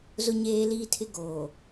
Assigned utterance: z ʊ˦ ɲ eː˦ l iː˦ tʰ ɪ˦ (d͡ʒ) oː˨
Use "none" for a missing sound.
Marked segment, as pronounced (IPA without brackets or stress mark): ɡ